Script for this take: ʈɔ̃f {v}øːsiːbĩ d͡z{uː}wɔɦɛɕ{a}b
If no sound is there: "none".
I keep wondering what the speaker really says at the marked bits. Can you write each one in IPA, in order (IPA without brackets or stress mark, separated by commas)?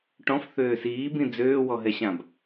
θ, øː, ã